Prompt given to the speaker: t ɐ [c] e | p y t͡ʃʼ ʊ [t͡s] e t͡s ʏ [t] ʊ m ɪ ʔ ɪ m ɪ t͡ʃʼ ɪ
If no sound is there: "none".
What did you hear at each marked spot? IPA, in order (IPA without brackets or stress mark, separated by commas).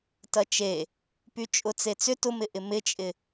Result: t͡ʃ, t͡s, t